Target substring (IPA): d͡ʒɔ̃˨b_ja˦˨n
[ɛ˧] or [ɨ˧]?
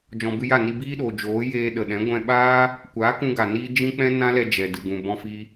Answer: ɨ˧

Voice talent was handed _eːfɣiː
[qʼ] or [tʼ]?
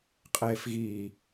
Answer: qʼ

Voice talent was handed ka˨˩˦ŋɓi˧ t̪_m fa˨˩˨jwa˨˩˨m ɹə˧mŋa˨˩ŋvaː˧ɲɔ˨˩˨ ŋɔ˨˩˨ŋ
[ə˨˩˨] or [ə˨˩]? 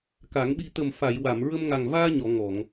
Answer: ə˨˩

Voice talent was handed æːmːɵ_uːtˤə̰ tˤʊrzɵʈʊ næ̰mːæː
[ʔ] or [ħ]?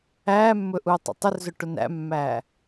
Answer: ʔ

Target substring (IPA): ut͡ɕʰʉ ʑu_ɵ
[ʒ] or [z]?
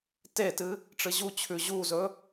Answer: z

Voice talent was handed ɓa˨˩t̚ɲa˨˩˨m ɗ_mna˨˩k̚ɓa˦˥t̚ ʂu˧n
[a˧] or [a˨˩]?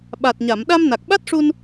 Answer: a˧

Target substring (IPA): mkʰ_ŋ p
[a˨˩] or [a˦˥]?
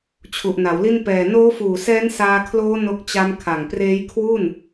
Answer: a˨˩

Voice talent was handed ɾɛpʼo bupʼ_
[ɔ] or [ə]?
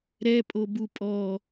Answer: ɔ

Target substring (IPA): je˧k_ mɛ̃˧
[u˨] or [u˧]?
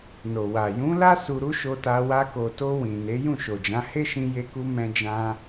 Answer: u˧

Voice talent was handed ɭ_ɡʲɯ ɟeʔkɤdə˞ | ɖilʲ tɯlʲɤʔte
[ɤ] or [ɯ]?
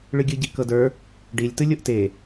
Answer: ɯ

